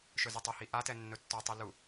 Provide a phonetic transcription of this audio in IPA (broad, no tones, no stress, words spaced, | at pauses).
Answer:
ʃɵzɘtˤəhi ʔatɛ nːɵtːɔtˤi lu